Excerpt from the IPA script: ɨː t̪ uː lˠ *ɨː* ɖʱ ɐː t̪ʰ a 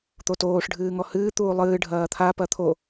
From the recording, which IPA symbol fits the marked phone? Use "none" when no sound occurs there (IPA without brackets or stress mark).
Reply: ɨː